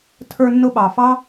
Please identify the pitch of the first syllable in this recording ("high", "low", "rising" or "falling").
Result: high